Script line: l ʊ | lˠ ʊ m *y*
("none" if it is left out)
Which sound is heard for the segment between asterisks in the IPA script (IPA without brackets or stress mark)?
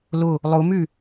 y